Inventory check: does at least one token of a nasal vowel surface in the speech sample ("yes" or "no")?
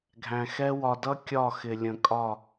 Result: yes